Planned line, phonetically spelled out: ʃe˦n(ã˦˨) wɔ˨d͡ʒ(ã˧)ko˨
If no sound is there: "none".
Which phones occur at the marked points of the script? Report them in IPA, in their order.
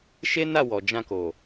a˦˨, ã˧

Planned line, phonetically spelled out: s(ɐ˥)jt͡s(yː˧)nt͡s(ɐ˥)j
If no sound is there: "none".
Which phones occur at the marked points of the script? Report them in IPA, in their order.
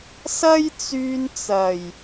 ɐ˥, yː˧, ɐ˨˩

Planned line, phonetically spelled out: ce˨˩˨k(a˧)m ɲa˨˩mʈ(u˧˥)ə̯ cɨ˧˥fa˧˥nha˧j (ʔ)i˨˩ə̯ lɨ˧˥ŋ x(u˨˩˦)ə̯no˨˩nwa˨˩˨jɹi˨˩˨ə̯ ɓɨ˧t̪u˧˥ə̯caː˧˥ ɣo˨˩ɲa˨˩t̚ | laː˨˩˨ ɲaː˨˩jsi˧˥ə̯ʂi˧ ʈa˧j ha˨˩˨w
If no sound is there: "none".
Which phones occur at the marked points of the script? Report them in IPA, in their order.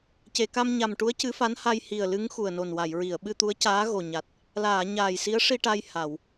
a˧, u˧˥, h, u˨˩

